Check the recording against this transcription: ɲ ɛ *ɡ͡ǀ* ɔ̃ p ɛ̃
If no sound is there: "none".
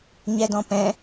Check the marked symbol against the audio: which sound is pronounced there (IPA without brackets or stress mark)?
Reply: d